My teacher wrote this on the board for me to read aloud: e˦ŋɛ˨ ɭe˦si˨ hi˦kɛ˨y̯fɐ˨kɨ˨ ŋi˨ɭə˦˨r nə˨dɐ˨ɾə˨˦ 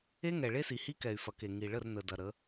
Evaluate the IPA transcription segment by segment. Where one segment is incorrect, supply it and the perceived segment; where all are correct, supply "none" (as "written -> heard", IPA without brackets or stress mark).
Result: ɨ˨ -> e˨